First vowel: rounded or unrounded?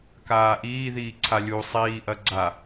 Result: unrounded